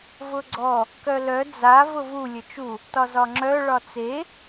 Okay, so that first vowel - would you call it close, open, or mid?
close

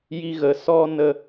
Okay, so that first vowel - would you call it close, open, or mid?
close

